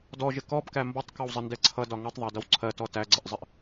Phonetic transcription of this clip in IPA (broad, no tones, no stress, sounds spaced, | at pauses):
d ɔ ʒ ɪ k ɔ b k æ m b ɔ tˤ k ɔ w zˤ ɪ n d ɛ ǀʰ ʌ d ɒ ŋ ʌ tˤ ðˤ æ d ʌ w ǀʰ ɜ t ɔ t æ ɡ͡ǀ ɪ ʔ zˤ ɪ ʔ